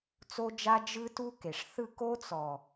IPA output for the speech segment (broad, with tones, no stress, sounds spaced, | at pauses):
t͡s o˦ d͡ʒ a˦ d͡ʒ ɯ˦ t u˦ k e˨ ʂ θ ɯ˦˨ k o˦ t͡s ɔ˨